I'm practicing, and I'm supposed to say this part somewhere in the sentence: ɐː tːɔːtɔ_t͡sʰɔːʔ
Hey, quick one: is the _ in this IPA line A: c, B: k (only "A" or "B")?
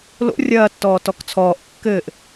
B